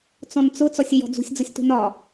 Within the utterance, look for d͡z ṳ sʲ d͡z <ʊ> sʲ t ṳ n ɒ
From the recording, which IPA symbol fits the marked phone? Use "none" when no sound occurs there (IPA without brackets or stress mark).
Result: ʊ